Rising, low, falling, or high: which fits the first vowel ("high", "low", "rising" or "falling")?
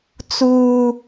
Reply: low